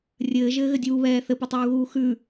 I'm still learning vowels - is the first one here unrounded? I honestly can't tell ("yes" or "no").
yes